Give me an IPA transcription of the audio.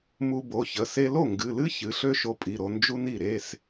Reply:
m u˧ b o˩˧˩ ç ə˩˧˩ s e˧ l o˥˩ ŋ ɡ ɨ˩˧˩ l ɨ˥ ç ɨ˩˧˩ ɬ ø˥ ʃ o˧ pʼ i˩˧˩ ɾ o˧ n d͡ʒ u˥ n i˥˩ ɾ e˧˥˧ s

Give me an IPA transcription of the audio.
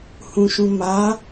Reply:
h ũ ʃ ũ m a

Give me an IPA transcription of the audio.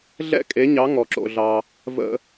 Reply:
ɮ ɛ̰˥ kʼ e˩˥ ɲ ɑ˩˥ ŋ ɔ˩ ǁ o̰˩ ɮ ɑ˩ | v ə̰˧

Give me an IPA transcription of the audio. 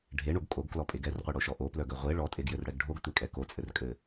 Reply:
ɖʱ e ɳ o ɡ kʼ o ɡ k l ɔ pʼ e ɡ ɛ r qʷ e ɽ o ʃ ɔ ʔ o p l œ ɡ œ ʁʷ e ɭ ɔ tʼ e ɡ j ɘ r ɽ ɛ ɡ ɖʱ o ɡ tʷ e kʼ ɛ k o t͡sʼ ɘ r kʼ ɘ

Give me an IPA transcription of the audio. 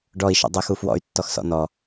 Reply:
ɖ ɔ i̯ ʃ ɔ̰ dˤ ɜ x u f w ɔ̰ y̯ tː ɔ x s ɔ̰ n ɔ

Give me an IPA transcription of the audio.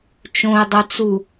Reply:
t͡ʃ õ i̯ dˤ o t͡s u

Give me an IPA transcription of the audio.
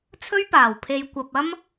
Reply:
t͡sʰ ɵ˥ ɥ p aː˨ w pʰ e˧ j kʷ ɐ˧ p̚ ɐ˥ m

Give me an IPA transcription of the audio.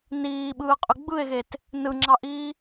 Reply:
n iː ɓ ɯː qʼ y ɡ͡b ɯ e̯ ɣ e t | n ɯ ŋ͡ǁ ɑ ʔ iː

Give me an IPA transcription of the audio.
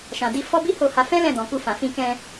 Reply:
ʃ ã˨ d i˧ f ɔ˦ b i˦ h o˦˨ h a˧ f ɛ̃˦ l ɛ̃˦˨ d ɔ̃˨ k u˧ f ã˨ f ĩ˧ k ɛ̃˧

